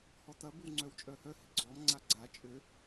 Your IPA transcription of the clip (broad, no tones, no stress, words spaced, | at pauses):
hɔtɐ bɪwŋ͡ǀœwt͡ʃʼœhœ hɪɡ͡ǀɔm ŋ͡ǀaɡ͡ǀa t͡ʃʼø